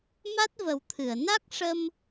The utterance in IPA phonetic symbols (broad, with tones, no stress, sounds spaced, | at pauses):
m a˦˥ t̚ v ə˨˩˦ w t̪ʰ ɨ˨˩˨ ə̯ n a˦˥ k̚ ʂ ə˧ m